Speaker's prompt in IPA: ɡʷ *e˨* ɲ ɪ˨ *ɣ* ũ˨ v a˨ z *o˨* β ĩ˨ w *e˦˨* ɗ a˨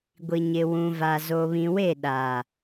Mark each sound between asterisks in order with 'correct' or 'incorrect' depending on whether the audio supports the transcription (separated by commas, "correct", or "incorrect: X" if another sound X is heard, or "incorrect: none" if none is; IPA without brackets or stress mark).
incorrect: i˨, incorrect: w, correct, correct